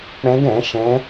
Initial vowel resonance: nasal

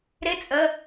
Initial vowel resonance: oral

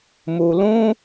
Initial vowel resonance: oral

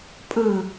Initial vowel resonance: nasal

